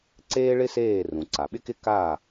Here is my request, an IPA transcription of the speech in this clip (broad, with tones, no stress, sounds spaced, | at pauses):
ǀ eː˥ ɭ ɪ˥ s eː˥˩ r ũ˩ ǀ a˩ ɓ ɪ˥ k ɪ˥ k a˥˩